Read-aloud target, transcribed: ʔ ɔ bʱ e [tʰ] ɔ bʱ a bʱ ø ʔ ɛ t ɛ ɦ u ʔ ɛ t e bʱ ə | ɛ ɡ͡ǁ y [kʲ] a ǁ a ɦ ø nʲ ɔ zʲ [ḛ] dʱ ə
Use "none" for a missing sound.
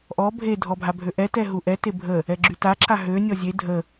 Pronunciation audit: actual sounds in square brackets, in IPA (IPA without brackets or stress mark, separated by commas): dʱ, t, e